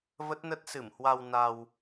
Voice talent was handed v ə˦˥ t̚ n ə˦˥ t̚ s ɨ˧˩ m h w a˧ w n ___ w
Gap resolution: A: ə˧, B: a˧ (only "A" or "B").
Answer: B